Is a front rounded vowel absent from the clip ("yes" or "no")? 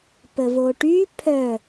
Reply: no